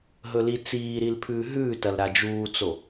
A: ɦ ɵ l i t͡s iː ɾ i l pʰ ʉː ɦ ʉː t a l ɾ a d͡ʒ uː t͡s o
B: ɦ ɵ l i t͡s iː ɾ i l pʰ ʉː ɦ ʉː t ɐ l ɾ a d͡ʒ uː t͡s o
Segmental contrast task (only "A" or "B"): B